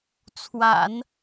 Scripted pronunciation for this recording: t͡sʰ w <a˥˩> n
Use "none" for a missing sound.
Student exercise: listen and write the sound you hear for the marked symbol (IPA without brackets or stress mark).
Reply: a̰˨˩˦